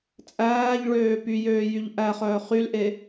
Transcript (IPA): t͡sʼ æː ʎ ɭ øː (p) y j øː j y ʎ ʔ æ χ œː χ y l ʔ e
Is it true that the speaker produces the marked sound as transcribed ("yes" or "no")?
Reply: yes